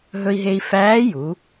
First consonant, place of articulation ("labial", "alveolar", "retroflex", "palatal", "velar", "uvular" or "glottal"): glottal